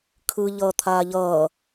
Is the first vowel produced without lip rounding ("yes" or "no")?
yes